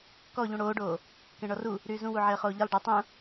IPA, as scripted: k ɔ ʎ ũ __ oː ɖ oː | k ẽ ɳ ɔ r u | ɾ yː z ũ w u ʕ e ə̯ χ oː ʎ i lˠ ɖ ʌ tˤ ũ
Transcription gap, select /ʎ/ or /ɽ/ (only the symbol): ɽ